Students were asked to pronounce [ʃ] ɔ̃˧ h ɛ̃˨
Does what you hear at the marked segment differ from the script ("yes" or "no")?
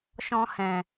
no